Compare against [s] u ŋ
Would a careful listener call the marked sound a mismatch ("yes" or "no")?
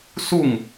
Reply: no